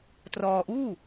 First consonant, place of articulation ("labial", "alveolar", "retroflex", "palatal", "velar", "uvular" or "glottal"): alveolar